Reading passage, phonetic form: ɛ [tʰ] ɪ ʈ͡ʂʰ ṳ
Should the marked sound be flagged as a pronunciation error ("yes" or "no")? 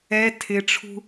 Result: no